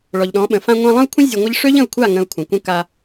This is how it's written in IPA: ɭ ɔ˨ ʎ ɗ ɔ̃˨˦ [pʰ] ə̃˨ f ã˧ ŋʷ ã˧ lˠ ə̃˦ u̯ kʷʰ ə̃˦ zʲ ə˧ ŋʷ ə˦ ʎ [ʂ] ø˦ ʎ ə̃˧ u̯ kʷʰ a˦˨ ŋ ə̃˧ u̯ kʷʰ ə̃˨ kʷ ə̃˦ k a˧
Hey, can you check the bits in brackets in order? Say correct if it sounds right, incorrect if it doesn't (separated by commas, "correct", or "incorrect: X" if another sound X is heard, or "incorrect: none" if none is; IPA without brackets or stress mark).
incorrect: ɓ, correct